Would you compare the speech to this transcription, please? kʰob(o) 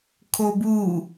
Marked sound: incorrect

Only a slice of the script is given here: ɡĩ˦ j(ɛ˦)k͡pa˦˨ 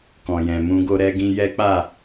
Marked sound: correct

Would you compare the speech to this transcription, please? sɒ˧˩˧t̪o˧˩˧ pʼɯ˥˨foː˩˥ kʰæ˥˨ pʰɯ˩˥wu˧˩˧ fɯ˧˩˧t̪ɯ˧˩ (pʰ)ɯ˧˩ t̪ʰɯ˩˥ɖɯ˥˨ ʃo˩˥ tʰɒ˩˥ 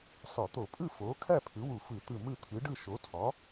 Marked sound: incorrect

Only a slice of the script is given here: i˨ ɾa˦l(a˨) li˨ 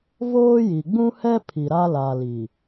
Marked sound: correct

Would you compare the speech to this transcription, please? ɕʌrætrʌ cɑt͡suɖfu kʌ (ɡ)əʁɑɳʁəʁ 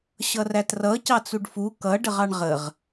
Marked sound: incorrect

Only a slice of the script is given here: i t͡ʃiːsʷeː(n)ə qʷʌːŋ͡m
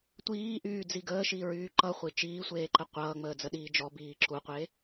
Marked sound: incorrect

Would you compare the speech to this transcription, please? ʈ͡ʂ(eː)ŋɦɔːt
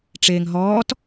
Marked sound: correct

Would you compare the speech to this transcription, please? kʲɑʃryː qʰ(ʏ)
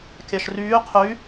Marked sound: incorrect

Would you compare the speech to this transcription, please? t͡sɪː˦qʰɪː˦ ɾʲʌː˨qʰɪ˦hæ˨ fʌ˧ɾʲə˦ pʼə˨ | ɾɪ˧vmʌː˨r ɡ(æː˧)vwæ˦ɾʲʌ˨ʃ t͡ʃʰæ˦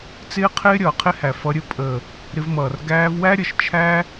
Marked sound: correct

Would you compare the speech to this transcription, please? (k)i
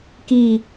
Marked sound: correct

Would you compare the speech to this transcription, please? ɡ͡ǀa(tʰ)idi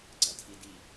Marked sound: correct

